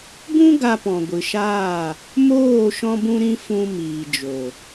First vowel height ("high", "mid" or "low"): high